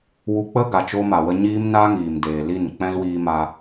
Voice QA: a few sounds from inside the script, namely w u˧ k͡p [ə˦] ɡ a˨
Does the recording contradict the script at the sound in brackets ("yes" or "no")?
no